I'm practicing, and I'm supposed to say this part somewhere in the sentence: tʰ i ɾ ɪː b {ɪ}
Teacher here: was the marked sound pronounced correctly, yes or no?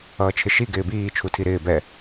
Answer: no